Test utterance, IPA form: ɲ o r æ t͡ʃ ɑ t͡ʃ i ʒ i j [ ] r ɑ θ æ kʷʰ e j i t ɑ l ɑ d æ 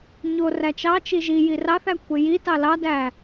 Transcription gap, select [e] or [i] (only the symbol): i